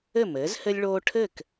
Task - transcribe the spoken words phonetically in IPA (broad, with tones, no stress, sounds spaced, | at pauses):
ɘ˥˨ m ɘː˨˥ z h ɘ˦ lʲ ɭ oː˦ ʈʰ ɘ˥˨ k